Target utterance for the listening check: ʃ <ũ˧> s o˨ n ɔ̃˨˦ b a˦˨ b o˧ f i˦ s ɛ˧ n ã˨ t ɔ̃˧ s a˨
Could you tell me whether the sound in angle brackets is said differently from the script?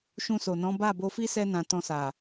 no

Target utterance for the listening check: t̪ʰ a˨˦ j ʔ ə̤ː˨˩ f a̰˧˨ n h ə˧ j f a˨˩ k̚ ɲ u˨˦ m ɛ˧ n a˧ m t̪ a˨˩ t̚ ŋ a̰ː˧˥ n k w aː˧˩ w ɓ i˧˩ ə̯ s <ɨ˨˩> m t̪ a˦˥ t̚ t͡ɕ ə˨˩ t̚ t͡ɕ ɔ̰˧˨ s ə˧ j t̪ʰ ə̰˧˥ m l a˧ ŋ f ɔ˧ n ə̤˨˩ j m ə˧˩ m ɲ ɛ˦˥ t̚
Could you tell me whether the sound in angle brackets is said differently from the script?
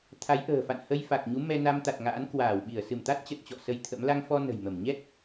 yes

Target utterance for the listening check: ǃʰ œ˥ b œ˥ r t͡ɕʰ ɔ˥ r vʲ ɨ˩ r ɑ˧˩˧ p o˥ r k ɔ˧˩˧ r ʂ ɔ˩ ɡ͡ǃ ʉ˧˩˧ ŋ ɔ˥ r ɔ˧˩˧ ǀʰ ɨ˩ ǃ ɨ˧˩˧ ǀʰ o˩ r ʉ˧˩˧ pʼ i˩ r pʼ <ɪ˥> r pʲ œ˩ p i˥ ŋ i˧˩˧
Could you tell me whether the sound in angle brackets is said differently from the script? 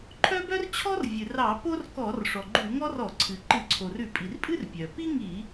yes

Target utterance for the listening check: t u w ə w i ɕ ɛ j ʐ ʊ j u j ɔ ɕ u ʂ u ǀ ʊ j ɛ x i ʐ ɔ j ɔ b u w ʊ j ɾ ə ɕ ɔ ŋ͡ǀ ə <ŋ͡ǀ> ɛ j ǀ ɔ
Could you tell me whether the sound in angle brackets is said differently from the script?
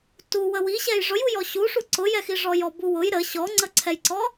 yes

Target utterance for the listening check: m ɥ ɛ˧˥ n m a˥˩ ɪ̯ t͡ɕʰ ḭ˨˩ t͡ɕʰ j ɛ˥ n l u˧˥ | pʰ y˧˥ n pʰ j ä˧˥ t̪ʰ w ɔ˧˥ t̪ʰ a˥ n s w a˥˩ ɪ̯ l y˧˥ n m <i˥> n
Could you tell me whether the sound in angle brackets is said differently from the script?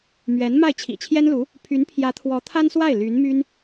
yes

